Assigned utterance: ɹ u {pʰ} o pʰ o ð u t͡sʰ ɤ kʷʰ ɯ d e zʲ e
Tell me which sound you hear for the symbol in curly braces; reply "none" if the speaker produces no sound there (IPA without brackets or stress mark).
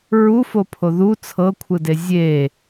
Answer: f